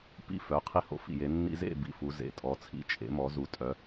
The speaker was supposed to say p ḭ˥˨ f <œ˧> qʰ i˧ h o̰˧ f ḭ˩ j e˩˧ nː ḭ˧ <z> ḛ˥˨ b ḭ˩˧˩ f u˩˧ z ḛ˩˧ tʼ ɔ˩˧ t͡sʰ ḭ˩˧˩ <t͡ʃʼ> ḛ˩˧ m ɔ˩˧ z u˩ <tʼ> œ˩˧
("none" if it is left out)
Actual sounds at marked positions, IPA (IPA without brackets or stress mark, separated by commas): œ˩˧˩, z, t͡ʃʼ, tʼ